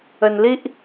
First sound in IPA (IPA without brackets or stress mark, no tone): ə